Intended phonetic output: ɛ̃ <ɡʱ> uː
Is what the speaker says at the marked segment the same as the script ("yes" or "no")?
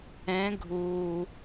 yes